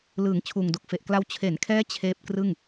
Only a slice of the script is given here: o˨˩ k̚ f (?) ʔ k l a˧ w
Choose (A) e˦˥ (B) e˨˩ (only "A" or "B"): B